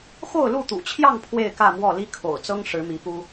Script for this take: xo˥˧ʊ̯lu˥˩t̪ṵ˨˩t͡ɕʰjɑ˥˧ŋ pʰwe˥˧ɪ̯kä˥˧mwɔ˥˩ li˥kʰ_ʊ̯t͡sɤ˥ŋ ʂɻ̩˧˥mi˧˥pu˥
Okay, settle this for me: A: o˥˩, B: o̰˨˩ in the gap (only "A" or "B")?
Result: B